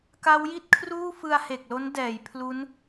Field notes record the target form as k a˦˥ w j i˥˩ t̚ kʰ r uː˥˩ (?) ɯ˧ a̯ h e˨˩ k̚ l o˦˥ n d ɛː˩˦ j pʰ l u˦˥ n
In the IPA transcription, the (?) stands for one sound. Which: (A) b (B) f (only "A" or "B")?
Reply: B